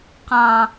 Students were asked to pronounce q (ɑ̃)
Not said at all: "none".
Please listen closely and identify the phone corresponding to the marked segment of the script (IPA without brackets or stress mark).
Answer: ɑ̃